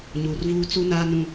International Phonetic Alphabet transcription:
ɲuː˨rvuː˦ t͡su˦naː˦ nũ˦

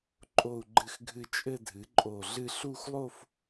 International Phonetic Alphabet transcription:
ǃʼo˥˧u̯ɡ͡ǃɨ˥˧xɡʱɨ˥˧ t͡ʃʼɘ˥˧dʱɨ˩˥ ǃʼo˧˩ɮɨ˥˧ ɬu˥˧xlˠo˥˧f

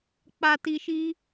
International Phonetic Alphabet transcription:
k͡pa˨ti˨ʃi˧

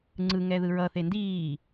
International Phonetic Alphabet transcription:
ŋ͡ǀɯŋɛ ðɯɹʌθe ndiː

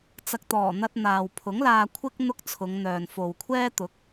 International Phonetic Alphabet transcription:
t͡sɐ˨k̚t̪ɔː˨˩n̪ɐ˧t̚ n̪aː˨wpʰʊ˨˥ŋlaː˧kʷʰɪ˥k̚ n̪ʊ˥k̚t͡sʰʊ˨˧ŋn̪œː˨n fo˨wkʷʰɛː˥ t̪ʊ˨˥k̚

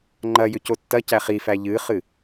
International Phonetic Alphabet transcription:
ŋ͡ǃɐ jʏcotːɐcæ χifæ ʎɨχɨ

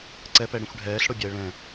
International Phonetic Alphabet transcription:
ǀɛpɛɽĩxʷ ɖʱɛːɬɽobʲaə̯ ɭɛ̃

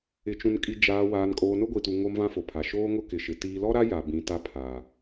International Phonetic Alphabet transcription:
ɪ˨t͡ʃũ˨nkʼi˨ d͡ʒaː˨ waː˨n kʼoː˨nʊ˦ɡʷi˨tu˨ ŋo˦m vã˦fo˨pʰa˨ ʃoː˦ŋʊ˦ kɪ˨ʃɪ˨ tiː˨lɔ˦ɾa˦ ja˨bĩ˨ta˦ pʰa˨

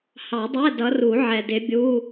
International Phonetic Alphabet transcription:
hɑ˨˩˦dˤɛ˧˥˧ dʌ˨˦ru˨˩˦ʕɛ˨dɪ˨˦ bʲu˧˥˧

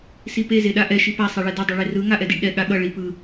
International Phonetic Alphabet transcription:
sipe zeɗaʔɛ ʃipa sˤeɭɛdʌ dˤʌɭerɯ ŋaʔɛdiɖɗɛ ɠaɠʌ ɭipɯ

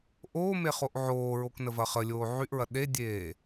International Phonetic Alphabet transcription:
ʔoː meχoʔʕoːɹok nəvɐχəlʲoː ʕyʔɹɐ ɗedʲeː

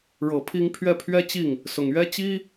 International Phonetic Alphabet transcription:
ɻɤ˨˩pʰi˥ŋ pʰɥɛ˥˩pʰɥɛ˥ t͡ɕi˥˩ŋ | sʊ˨˩ŋɥɛ˥ t͡ɕi˥

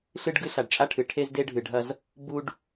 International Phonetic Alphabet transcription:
ɬɨ˦ɖɡɨ˦ ɬa˨ɖt͡ʃʼa˦ʈʰɨ˨ʈʰe˦z de˦ɖʱɨ˨ɖʱɐ˦z | bu˦ɖ

